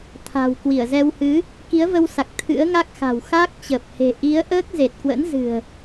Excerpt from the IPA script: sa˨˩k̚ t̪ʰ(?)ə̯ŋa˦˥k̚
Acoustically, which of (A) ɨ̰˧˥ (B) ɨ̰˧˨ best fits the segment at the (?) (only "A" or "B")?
A